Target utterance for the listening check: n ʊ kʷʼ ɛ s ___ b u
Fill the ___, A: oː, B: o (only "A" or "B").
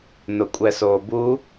A